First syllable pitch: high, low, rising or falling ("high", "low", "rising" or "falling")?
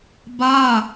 falling